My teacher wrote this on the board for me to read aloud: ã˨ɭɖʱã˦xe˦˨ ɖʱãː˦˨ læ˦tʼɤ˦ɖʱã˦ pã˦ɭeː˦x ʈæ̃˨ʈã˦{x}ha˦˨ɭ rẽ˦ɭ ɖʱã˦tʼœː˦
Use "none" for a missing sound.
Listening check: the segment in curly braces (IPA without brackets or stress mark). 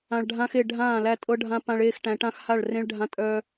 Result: x